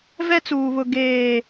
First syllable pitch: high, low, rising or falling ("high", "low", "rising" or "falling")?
high